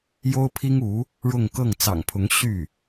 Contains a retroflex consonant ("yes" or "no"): yes